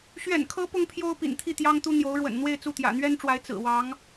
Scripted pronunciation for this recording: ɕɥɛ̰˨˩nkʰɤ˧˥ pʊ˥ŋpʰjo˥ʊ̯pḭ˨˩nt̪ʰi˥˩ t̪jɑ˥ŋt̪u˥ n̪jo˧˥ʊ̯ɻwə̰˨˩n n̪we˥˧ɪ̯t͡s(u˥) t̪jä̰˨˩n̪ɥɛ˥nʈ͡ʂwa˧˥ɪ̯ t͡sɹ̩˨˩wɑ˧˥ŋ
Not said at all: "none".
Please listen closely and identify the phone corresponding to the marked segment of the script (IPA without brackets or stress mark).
u˥˩